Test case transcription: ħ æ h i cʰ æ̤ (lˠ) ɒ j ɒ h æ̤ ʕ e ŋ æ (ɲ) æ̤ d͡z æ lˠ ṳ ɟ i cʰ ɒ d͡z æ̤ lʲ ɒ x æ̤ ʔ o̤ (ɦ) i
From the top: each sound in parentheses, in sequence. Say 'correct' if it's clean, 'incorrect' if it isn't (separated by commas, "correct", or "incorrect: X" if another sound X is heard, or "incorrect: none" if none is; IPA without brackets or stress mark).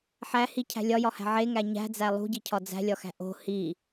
incorrect: lʲ, correct, incorrect: h